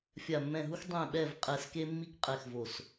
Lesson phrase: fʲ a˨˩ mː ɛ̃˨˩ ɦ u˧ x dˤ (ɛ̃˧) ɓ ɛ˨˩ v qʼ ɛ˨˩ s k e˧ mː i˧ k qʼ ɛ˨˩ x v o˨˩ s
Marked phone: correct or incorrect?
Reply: incorrect